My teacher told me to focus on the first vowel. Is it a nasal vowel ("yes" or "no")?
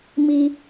no